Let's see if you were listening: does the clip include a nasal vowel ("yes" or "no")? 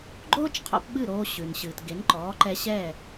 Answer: no